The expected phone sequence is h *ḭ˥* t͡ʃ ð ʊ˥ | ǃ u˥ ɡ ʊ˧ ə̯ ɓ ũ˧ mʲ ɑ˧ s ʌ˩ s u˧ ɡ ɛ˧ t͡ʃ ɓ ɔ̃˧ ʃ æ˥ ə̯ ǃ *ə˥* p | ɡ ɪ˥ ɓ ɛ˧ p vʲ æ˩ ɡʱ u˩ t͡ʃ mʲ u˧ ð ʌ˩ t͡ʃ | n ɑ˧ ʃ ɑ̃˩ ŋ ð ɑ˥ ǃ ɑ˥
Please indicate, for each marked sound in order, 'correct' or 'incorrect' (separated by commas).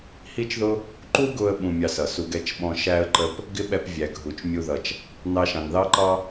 incorrect, correct